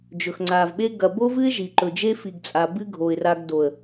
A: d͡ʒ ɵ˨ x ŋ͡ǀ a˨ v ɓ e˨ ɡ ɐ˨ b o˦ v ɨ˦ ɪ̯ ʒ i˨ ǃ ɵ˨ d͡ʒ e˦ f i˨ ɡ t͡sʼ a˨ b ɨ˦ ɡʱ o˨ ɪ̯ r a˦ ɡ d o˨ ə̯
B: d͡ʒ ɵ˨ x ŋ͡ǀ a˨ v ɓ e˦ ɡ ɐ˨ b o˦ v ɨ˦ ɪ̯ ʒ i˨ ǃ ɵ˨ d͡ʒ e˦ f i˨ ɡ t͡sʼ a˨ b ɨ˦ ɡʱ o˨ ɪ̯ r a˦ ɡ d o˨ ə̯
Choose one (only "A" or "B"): B